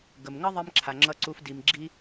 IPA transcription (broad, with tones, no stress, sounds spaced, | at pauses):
ɡ ə˨ m ŋ ə˦ ðˤ i˧ m ǁʰ a˨ ŋ͡ǁ ʌ˧ ǀ u˧ f d i˧ m ɡ͡ǁ i˧